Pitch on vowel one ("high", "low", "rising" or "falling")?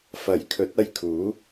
low